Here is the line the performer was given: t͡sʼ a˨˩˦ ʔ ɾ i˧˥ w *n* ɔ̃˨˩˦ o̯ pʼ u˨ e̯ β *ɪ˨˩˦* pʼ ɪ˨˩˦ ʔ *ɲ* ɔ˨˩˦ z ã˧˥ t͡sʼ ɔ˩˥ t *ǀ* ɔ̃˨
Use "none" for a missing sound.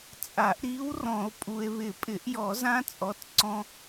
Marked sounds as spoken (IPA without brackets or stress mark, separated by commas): r, ɪ˨˩˦, j, ǀ